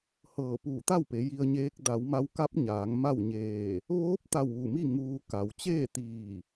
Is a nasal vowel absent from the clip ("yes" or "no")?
yes